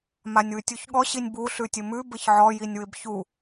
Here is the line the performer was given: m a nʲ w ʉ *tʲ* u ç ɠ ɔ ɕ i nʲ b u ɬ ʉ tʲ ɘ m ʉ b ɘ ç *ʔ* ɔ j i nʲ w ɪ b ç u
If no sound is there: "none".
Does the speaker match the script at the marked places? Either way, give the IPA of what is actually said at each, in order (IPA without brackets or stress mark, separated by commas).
tʲ, ʕ